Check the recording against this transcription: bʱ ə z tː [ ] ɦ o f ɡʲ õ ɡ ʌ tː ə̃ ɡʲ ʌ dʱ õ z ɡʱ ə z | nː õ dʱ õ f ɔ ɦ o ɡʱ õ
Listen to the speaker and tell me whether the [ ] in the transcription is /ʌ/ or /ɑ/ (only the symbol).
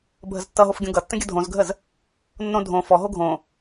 ʌ